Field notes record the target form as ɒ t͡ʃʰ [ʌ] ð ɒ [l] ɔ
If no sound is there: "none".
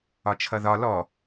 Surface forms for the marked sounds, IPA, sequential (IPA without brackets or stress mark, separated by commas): ʌ, l